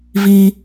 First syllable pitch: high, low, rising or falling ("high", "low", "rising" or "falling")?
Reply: high